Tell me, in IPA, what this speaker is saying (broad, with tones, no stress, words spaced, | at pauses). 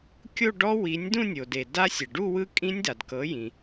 kʲo˥˧ɖɔ˦˥ wi˩˥nʲ dũ˥˧nʲo˩de˩ da˦˥ sʲɛ˩ɖu˥˧wɯ˦˥kʼĩ˦˥nʲ da˩d kɤ˩˥jĩ˩